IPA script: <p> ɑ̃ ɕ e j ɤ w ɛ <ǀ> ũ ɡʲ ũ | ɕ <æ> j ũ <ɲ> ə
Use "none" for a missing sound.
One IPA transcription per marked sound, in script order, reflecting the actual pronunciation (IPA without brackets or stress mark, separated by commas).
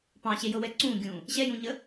p, ǀ, ɛ, ɲ